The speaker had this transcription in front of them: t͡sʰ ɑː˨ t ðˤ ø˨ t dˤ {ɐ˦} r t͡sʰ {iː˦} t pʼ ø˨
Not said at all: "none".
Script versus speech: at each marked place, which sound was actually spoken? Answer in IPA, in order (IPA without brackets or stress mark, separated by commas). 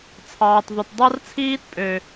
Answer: ɑ˦, iː˦